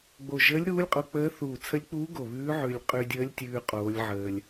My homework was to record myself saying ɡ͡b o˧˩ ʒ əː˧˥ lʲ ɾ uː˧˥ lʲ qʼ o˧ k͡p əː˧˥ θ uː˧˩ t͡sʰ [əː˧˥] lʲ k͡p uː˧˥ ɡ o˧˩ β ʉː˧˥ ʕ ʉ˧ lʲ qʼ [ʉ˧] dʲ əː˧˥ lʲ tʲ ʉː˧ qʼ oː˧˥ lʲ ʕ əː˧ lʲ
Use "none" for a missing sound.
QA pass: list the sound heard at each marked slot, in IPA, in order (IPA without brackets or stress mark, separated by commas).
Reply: ə˧˥, ʉ˧